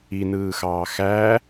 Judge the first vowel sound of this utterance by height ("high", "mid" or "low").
high